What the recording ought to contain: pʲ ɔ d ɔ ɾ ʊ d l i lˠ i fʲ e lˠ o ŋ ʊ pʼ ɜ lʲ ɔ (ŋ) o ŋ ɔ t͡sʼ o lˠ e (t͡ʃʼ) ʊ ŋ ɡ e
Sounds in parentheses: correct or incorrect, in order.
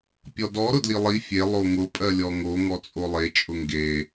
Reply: correct, correct

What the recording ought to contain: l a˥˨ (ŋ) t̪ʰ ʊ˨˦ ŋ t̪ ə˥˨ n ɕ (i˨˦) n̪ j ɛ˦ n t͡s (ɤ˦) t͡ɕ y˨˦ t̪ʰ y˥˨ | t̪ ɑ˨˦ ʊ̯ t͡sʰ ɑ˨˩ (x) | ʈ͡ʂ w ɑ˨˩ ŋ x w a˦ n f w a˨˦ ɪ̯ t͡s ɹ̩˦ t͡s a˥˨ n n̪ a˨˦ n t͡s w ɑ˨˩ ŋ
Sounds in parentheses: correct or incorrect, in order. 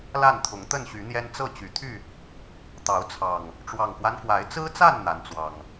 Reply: incorrect: n, incorrect: y˨˦, incorrect: ɤ˥˨, incorrect: ŋ

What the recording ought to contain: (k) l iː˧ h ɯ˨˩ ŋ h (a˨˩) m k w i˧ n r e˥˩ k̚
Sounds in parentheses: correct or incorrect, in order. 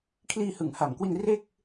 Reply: incorrect: kʰ, correct

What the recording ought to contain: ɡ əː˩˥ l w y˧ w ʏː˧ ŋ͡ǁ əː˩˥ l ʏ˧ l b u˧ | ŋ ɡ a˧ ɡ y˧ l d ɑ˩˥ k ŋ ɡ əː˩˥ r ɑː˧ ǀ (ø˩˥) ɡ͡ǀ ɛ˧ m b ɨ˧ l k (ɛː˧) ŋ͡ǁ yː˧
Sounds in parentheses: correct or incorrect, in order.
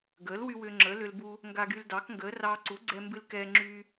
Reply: incorrect: u˩˥, correct

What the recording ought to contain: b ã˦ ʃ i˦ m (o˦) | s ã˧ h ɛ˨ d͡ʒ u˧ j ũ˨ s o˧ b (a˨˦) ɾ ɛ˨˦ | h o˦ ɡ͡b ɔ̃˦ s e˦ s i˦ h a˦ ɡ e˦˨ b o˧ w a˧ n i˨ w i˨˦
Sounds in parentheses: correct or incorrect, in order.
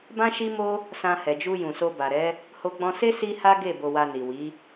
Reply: correct, incorrect: a˨

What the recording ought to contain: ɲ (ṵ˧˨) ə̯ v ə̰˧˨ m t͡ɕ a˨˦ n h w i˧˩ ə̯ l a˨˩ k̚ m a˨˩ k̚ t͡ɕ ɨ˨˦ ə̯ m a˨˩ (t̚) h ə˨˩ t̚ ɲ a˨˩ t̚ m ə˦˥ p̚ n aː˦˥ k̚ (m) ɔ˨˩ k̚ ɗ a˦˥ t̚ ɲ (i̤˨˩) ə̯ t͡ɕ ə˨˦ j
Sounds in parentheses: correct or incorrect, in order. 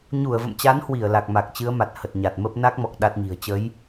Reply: incorrect: u˧˩, correct, correct, correct

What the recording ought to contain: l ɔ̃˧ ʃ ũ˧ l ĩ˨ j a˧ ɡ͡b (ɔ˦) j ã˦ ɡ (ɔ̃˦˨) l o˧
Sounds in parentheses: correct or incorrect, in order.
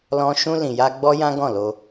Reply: correct, correct

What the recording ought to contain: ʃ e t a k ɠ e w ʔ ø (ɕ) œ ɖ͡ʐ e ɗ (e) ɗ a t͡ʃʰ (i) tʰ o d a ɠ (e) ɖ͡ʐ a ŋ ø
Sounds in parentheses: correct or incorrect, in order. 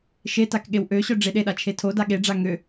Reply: correct, correct, incorrect: e, correct

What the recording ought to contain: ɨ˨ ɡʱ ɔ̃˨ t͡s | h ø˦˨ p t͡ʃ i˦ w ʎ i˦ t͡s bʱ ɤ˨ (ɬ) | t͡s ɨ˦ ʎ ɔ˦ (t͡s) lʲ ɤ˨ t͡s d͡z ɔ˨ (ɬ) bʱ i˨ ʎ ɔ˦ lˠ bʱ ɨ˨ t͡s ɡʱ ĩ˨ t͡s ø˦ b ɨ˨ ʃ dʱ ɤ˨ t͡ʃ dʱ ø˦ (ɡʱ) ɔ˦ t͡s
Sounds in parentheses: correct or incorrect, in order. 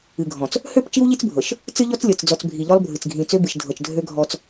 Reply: incorrect: ʃ, correct, incorrect: t͡s, correct

